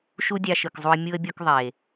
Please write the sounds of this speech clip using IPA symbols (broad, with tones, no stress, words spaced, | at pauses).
ʃu˦dʲɑ˧ʃɯ˨kzˤu˧ə̯ mʲu˧ə̯bʲo˧k ðˤe˨